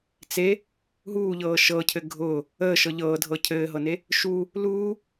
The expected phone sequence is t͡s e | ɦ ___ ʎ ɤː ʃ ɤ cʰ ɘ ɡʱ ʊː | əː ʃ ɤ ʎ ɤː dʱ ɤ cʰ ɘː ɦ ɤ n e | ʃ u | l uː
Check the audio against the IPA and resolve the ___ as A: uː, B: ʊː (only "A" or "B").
A